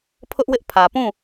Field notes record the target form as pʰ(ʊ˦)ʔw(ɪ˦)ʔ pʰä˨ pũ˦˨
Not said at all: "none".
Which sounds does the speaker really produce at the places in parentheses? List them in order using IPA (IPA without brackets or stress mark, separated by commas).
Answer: ʊ˦, ɪ˦